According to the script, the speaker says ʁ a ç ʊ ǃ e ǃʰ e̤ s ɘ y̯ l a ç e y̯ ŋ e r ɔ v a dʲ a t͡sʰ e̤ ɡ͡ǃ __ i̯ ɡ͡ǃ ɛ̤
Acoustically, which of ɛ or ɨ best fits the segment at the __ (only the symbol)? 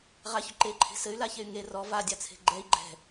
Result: ɛ